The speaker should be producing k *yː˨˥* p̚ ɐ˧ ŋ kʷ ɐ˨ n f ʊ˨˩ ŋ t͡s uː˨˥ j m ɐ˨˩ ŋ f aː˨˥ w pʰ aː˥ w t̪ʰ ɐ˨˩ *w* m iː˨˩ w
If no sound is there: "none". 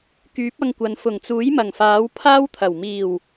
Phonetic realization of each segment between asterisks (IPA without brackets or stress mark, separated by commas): yː˨˥, w